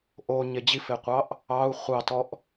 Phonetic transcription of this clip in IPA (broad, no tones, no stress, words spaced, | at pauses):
ʔo ɲed͡ʑifeqʷɑʔ | ɑu̯ χʷɑtɔʔ